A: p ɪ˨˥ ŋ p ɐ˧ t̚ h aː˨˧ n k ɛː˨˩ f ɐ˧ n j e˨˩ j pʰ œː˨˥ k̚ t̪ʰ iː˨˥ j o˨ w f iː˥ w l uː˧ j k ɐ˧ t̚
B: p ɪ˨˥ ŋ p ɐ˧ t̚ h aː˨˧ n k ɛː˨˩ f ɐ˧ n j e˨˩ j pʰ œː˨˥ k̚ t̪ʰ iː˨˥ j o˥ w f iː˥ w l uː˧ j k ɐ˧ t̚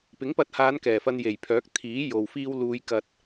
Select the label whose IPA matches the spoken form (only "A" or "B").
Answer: A